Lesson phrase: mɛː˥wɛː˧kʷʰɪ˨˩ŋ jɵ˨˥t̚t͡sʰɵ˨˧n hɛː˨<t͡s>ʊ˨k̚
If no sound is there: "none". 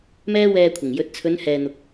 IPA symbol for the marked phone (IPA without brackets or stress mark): n̪